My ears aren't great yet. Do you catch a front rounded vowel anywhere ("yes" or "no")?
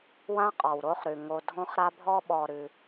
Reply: no